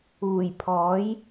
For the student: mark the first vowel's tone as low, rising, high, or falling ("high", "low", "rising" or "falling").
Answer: low